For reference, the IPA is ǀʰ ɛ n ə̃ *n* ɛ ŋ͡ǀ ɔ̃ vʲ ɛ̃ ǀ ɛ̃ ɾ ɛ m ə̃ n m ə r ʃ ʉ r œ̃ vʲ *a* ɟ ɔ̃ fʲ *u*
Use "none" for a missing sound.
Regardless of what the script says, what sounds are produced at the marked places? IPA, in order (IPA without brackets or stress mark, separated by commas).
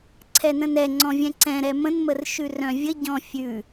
n, ə, ʉ